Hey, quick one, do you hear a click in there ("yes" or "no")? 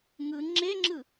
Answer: yes